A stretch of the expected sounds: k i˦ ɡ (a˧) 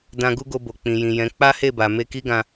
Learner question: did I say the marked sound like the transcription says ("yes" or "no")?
no